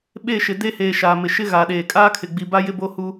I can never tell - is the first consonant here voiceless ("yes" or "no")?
no